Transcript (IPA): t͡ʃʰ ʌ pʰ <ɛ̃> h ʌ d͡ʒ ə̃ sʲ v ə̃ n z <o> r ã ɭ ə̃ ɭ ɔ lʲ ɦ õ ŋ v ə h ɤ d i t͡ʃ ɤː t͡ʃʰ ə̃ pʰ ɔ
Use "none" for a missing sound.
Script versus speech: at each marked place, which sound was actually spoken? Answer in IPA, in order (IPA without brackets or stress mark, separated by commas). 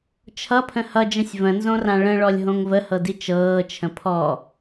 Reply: ə̃, õ